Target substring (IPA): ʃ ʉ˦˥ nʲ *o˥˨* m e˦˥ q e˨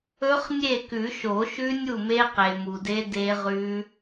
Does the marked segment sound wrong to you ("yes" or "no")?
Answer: yes